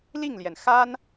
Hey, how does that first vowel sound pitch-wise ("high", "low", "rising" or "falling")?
falling